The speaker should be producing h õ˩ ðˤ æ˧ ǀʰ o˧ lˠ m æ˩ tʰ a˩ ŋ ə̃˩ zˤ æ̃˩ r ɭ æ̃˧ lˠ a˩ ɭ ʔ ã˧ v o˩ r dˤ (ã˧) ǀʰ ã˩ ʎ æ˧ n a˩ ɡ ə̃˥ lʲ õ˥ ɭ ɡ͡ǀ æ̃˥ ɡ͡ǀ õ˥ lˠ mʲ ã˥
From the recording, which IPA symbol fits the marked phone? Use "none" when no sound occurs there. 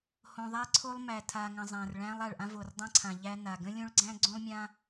ã˧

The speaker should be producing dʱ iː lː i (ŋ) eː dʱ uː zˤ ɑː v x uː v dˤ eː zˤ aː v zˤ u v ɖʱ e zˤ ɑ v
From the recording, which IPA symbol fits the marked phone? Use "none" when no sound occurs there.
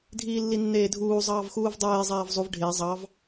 nː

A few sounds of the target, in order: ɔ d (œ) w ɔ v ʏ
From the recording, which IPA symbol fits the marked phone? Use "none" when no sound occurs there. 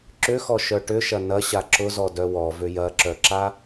œ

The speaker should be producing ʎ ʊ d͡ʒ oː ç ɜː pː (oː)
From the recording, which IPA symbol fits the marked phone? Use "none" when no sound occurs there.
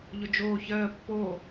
oː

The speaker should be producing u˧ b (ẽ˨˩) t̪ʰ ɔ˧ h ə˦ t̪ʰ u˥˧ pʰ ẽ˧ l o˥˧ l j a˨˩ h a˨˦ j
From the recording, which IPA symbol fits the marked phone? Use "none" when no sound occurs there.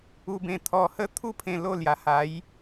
ẽ˨˩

